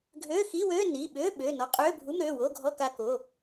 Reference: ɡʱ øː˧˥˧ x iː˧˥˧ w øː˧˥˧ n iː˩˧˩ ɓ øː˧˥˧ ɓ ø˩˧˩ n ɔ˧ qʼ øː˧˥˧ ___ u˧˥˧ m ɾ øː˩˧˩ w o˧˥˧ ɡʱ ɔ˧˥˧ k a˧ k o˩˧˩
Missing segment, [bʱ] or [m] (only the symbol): bʱ